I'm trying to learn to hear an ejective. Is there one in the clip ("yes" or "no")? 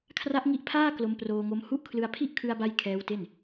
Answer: no